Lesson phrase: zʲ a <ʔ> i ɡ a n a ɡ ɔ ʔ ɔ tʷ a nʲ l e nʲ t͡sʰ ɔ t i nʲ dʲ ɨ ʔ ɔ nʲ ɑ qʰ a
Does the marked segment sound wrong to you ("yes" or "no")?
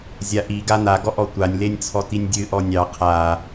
no